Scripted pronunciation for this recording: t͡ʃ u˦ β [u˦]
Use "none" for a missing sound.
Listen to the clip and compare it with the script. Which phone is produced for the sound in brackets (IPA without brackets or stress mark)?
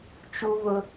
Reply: ʊ˦